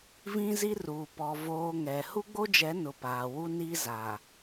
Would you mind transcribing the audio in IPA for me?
v ĩ˦ z i˦ r uː˨ p ɔ˨ v oː˨ ŋ ɛ˨ h u˦ ɡ͡b o˦ d͡ʒ ɛ˨˦ n ʊ˨ p aː˨ w u˦ n i˦ z a˨

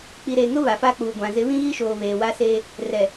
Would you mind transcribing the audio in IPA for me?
k͡p i˨ ɾ eː˨ ŋ ʊ˦ β a˨ f a˦ k͡p uː˨ ɡʷ ã˨ z ɪ˨˦ β ĩ˦ ɣ i˦ ʃ oː˨ β eː˨ w a˦ s eː˦ | r ɛ˨

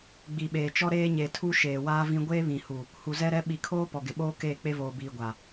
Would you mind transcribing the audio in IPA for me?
ɡ͡b i˨ ɓ eː˨ t͡ʃ ɔ˦ ɾ eː˦ ɲ e˨ tʰ u˦ ʃ eː˨ w aː˦ v ĩ˦ ɡʷ eː˦ β ĩ˨ h u˨ | h u˨ z ɛ˦ ɾ ɛ˦ ɓ i˨ kʰ oː˦ p ɔ˨ ɡ ɪ˨ ɓ oː˦ k eː˦˨ k͡p e˦ v oː˨ b iː˨ ɡʷ a˨

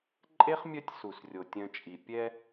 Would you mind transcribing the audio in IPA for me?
ǃʼ e˥ χ mʲ œ˦ tʲ s u˩ s rʲ o˩ tʲ œ̃˨ t͡ʃʼ i˩ pʲ ɛ˦

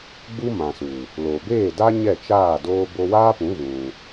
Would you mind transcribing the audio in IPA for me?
ɡ͡b u˦ m ã˨ s u˨ | l o˨ b eː˦˨ d a˦ ɲ ɛ˦˨ t͡ʃ aː˦˨ d oː˧ b o˧ w aː˦ p ũ˨˦ ɣ ũ˧

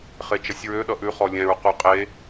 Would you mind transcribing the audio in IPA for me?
χ e t͡ʃ ʌ sʲ ɹ ø ɗ ʌ ʔ ʉ χ ɔ lʲ ɛ̃ ɹ q ʉ qʼ e

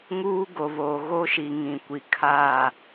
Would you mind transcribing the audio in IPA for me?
ŋ uː˦ ɡ o˨ β oː˨ ɣ o˦ ʃ i˨ ŋ ĩ˨ kʷ i˨ kʰ a˦˨

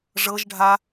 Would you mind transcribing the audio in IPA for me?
ʐ ɤ ʒ ɖʱ a

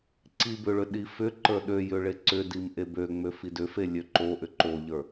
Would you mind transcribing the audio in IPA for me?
ǀ i b ʏ ɭ ʏ ɗ i f ʏ ǃ ə˞ ɗ ø j ʏ ɭ e ǀ ʏ d i m ʔ e b ø ŋ͡m ø f i d ʏ f e lʲ ø ǃ o ʔ ʏ ǃ o ʎ ə˞

